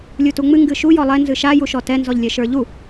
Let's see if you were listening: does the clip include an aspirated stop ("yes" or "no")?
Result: no